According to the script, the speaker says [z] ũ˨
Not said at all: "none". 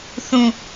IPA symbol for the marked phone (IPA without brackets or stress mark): θ